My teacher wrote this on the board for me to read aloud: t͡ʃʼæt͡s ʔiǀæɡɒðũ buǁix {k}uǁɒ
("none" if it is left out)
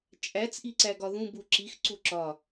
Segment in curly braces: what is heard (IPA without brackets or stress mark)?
ǀ